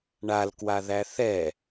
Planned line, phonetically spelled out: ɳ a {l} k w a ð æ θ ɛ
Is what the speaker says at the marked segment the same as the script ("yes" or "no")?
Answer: yes